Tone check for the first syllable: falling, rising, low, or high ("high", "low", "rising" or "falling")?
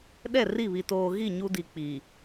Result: falling